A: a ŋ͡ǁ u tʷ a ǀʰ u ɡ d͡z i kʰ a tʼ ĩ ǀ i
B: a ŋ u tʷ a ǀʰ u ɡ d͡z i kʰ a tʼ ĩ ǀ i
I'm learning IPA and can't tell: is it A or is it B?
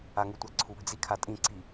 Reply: B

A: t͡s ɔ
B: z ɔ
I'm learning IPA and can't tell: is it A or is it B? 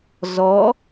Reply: B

